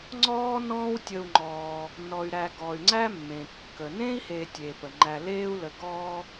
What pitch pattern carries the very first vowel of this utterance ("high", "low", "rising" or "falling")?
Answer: high